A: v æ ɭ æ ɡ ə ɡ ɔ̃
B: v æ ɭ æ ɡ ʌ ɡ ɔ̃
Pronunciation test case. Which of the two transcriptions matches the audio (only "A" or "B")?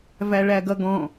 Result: B